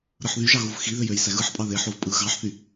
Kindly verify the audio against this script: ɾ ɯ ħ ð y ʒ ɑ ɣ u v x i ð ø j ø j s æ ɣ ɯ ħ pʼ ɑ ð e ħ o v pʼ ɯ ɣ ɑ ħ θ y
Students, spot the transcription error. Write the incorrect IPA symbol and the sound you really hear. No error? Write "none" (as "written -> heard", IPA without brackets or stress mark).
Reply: none